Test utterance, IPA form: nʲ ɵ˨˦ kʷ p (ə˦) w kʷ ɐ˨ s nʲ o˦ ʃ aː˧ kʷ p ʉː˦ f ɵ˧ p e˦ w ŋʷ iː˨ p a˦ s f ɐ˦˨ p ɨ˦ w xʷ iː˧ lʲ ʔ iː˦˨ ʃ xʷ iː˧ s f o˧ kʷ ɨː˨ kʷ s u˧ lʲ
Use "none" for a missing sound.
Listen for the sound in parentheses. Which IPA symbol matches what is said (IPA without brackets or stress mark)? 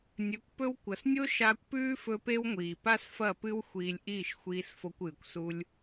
ɵ˦